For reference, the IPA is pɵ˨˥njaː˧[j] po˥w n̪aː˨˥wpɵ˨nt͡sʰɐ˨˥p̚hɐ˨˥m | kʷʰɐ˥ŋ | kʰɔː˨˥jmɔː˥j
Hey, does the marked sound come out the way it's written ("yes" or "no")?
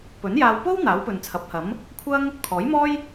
no